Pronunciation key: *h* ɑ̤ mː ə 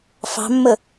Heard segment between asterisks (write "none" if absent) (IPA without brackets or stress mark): f